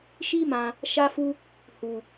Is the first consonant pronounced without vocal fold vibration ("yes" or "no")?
yes